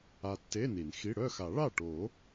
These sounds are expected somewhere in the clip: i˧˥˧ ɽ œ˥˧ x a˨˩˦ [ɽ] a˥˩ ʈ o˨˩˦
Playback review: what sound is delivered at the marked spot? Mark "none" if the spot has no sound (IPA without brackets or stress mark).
ɭ